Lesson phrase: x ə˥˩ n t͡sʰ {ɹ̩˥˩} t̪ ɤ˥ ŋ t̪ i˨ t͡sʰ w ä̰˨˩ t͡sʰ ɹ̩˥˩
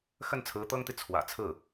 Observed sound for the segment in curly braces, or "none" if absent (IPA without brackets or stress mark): ɹ̩˧˥